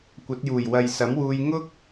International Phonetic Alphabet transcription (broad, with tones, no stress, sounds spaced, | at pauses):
kʷ ɐ˨˥ t̚ j uː˨˩ j w ɐ˨ j s ɐ˨˥ m w uː˧ j ŋ ʊ˥ k̚